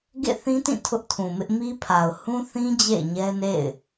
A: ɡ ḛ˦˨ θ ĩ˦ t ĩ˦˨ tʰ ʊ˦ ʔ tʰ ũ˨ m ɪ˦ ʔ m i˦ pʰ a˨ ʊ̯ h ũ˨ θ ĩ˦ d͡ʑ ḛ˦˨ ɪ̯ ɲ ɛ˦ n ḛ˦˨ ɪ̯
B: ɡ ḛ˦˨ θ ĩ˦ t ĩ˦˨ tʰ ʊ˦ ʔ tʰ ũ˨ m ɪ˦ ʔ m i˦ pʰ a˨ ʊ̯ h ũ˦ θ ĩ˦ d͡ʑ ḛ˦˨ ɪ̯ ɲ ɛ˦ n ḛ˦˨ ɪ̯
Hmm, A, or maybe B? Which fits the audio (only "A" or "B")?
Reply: B